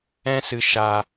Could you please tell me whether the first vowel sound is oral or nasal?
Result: nasal